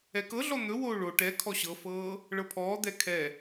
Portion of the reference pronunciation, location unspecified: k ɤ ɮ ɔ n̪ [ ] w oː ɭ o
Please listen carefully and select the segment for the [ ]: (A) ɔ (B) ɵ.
B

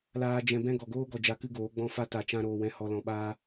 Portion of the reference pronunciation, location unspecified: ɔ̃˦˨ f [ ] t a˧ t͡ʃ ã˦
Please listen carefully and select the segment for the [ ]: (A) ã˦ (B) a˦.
B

